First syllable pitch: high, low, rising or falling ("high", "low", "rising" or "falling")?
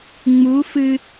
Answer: rising